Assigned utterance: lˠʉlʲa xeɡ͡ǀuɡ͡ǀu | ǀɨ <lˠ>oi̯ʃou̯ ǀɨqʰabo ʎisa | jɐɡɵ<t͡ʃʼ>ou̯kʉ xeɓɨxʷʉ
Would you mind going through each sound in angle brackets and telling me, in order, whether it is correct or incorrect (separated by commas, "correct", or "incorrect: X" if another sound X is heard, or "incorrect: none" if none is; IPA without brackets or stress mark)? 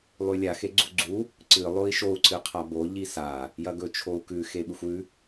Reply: correct, incorrect: t͡ʃʰ